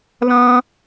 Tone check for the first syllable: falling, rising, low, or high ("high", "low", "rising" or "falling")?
high